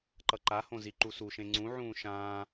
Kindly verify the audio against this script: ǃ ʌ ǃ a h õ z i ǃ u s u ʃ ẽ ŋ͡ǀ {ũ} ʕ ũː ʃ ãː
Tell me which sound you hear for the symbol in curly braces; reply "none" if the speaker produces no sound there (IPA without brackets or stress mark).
ũ